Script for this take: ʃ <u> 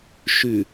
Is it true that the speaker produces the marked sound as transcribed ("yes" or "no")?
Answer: no